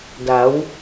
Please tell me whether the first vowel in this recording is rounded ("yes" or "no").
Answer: no